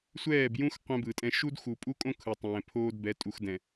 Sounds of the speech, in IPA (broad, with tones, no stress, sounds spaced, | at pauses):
sʷ ɛː˦˨ b j ũ˦ x qʷ ɛ̃˦ b ɯ˨ tʼ ɛ̃˦ ʃ u˦ d x u˨ pʼ u˦ kʼ õ˦ kʰ ɯ˨ tˤ ɛ̃ː˨ pʰ oː˦ d b ɛ˨˦ tʼ u˨ x d ɛ̃˨